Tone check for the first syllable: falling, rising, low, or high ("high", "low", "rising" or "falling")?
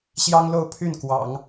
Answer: high